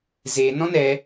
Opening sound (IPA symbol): z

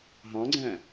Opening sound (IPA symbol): ɦ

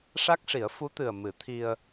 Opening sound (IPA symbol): ʂ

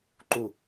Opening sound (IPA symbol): ǃ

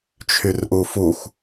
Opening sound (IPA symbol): t͡ʃʰ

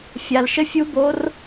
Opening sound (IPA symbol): fʲ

